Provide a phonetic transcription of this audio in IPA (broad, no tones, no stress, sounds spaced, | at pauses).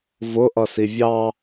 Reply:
v ʊ ʔ ʌ s i vʲ ɑ